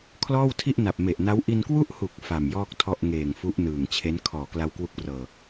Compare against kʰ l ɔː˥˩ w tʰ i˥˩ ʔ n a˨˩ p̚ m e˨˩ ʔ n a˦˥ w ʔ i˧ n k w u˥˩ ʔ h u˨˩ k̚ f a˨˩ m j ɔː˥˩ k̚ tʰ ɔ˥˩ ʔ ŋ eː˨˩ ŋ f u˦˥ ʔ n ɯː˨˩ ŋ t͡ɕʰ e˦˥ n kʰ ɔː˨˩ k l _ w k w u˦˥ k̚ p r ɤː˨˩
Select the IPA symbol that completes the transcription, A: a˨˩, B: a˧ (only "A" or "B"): B